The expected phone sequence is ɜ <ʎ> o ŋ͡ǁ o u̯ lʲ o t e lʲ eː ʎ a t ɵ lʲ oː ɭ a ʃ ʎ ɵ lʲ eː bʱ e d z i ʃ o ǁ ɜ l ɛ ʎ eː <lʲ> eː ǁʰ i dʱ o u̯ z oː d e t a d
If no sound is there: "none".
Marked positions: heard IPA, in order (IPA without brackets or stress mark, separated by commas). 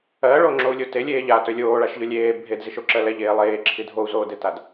ɭ, lˠ